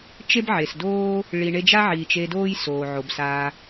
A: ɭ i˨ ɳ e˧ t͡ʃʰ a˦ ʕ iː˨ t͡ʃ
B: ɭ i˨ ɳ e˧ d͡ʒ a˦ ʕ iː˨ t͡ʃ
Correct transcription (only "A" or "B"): B